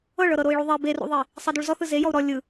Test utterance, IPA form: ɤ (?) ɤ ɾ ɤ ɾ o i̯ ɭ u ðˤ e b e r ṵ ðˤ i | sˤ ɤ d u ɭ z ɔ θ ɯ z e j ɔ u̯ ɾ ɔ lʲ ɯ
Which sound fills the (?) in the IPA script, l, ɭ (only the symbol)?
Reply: ɭ